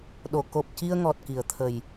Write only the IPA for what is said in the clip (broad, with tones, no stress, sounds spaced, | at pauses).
ɗ o˨˩˨ k o˨˩ p̚ c i˧ ə̯ ŋ ɔ˨˩ t̚ k i˨˩˨ ə̯ t̪ʰ ə˨˩ j